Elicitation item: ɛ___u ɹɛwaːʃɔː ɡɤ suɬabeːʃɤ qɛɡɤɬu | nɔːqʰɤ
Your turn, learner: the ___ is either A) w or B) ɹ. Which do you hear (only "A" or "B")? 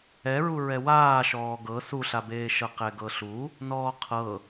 B